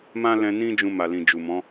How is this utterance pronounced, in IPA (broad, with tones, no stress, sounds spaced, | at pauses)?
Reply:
m ã˦ l ɛ̃˧ n ĩ˦ d͡ʒ ũ˧ m a˨ l ĩ˨ d͡ʒ u˨ m ɔ̃˨˦